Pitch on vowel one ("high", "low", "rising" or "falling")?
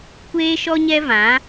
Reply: high